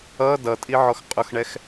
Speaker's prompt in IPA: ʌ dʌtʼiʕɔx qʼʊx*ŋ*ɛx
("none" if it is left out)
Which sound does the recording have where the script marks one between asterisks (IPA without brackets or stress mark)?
ɳ